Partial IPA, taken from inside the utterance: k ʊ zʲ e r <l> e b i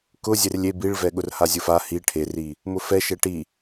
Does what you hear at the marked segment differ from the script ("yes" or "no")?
yes